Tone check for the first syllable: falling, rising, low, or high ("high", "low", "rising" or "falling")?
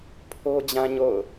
high